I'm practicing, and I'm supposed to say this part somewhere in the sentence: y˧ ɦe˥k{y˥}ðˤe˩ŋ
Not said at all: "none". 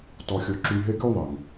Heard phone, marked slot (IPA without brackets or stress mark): y˥